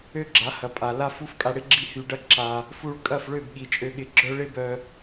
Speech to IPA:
ø˦ ɡ͡ǁ a˨˦ h ɐ˨ pʼ a˨ l a˦ f u˦ f kʼ a˧ ɽ ɪ˦ ɡ͡ǁ i˦ h y˧ ɖ ɐ˦ ǁ a˧ | f u˧ ɭ kʼ ɐ˦˨ f ɭ ø˦˨ b ɠ i˨ t͡ʃʼ ø˧ ɠ ɪ˧ ɡ͡ǁ œ˦ ɭ ɪ˦ b œ˧

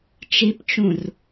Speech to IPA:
t͡ʃ i p t͡ʃ ũ r

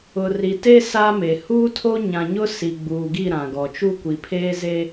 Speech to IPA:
ʊ˨ r i˨ t e˦ s a˦ m e˨ h uː˦ tʰ o˦ ɲ ã˨ ɲ ʊ˦ s i˨ ɡ͡b uː˨ ɡ i˦˨ ɾ ã˨ ɡ ɔ˨ t͡ʃ u˦ kʷ i˨ pʰ eː˦ z e˦

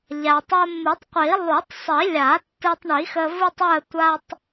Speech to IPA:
ʎ a˩ tˤ o˧ mː ɯ˨˩˦ tˤ qʷ i˨˩˦ lˠ u˨˩˦ tˤ sˤ i˨˩˦ lʲ a˨˩˦ tː ɯ˧ tˤ ɳ i˨˩˦ x ə˧ v ɯ˥ tˤ ɯ˥˧ ə̯ tʷ a˥ tˤ

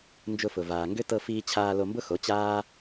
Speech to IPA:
n d͡ʒ ʊ˧ f ʊ˨ v aː˨ ŋ ɡ ʏ˦ t ɤ˧ f iː˧ t͡ɕʰ aː˧ l o˧ m b ʊ˦ x o˨˦ t͡ɕ aː˦

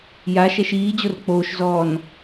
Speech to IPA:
j a ʃ ɛ ʃ iː d͡ʑ o r k͡p oː ʃ z ɔː n

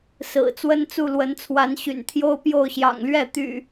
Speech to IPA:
s ɹ̩˨˩ t͡s w ə˦ n t͡s u˥˨ l w ə˨˦ n t͡sʰ w a˨˦ n ɕ y̰˨˩ n t̪ʰ j o˦ ʊ̯ p j o˥˨ ʊ̯ ɕ j ɑ̰˨˩ ŋ l ɥ ɛ˥˨ t̪ y̰˨˩

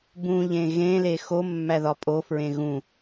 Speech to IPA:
b ũ ʎ ẽ ɣ ẽ l e x o mː æ ð ɒ pʼ o f ɹ ẽ ɣ ũ

